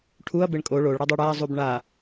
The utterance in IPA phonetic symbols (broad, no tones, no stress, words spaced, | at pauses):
ʈʰuɐ̯ beɳkʼo ɭoɭɽadˤœ ɽaɐ̯zˤub ɳa